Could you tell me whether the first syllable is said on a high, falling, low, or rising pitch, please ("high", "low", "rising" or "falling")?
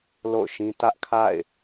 falling